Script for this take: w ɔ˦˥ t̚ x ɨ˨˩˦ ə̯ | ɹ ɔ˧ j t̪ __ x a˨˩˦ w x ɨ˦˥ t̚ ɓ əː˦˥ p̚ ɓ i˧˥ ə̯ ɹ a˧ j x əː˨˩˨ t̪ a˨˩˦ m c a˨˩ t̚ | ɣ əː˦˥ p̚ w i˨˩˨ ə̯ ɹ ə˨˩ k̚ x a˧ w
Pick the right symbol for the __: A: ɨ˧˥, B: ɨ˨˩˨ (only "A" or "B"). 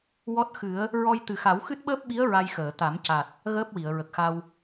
B